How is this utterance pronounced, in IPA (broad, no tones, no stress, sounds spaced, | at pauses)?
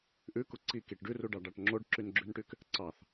ʔ ʉ k u ǀ i k i ʈ ɖ ʉ r u ɖ ɑ ɖ ɑ ʈ ŋ͡ǁ o ɖ ǁ y n ɡ͡ǁ ʉ n ʈ y k | ǀ ɑ θ